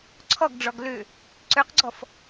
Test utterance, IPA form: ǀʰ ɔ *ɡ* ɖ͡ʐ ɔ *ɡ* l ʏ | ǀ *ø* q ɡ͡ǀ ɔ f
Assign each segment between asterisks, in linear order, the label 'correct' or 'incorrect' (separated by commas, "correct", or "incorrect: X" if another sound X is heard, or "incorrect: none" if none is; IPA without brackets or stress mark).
correct, correct, correct